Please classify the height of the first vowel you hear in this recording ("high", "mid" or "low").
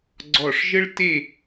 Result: mid